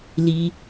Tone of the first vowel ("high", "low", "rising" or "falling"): high